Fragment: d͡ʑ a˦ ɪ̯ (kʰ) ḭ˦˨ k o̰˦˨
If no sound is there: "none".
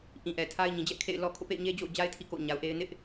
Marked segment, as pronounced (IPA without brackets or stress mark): tʰ